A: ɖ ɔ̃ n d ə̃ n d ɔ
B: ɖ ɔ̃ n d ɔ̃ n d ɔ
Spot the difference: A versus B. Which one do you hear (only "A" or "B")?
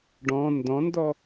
B